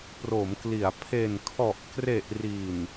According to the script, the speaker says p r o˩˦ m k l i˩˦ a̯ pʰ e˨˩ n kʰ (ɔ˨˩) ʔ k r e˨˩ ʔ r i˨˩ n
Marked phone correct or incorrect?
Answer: correct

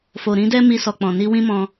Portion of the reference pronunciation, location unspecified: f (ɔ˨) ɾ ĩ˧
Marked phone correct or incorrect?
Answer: incorrect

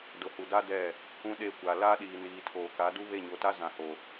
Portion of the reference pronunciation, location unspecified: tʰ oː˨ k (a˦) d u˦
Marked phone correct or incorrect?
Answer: incorrect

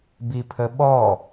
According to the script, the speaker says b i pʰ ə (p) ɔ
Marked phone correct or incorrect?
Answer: incorrect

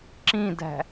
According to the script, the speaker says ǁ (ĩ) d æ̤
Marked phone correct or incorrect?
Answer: correct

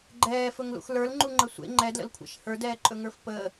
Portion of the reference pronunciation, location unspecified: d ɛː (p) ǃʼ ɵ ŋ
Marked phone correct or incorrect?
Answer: incorrect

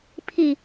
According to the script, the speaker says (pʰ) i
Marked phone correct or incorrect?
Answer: correct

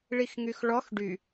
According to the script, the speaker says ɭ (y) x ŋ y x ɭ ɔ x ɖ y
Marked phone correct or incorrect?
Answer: incorrect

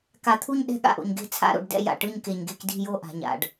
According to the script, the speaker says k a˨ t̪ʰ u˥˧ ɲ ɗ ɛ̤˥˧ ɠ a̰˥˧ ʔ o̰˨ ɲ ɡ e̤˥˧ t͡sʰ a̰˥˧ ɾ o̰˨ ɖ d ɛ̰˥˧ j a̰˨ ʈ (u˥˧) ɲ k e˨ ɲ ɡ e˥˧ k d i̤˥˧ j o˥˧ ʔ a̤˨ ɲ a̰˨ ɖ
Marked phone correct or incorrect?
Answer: incorrect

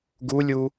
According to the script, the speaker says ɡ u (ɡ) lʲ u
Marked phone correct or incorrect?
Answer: incorrect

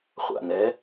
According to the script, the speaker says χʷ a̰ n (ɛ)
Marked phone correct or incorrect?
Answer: correct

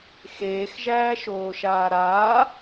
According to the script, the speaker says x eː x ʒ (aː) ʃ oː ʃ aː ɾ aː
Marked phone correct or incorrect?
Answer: incorrect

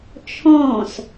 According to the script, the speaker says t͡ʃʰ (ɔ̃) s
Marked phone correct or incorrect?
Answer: correct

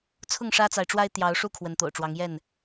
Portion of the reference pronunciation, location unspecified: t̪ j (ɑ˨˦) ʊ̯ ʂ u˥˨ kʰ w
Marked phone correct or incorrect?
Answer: correct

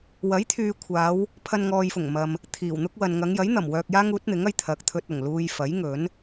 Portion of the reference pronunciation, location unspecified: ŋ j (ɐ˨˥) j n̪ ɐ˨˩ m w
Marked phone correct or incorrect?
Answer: correct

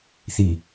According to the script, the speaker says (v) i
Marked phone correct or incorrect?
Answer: incorrect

